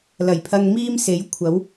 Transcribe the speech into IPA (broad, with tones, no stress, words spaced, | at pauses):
lɐ˨˩jpʰɐ˧ŋ miː˥mse˨˥j kʷʰɐ˨˥w